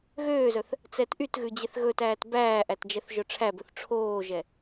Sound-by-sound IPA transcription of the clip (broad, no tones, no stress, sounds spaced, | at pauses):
ɣ øː z œ θ | t͡s ɛ t ʔ y t ɣ ʉ d͡ʑ e θ ɣ ɵ t æː t b æː ʔ æ t d͡ʒ ɛ θ ʒ œ ʈ͡ʂʰ æ b ɵ θ ʈ͡ʂʰ oː ʒ ɛ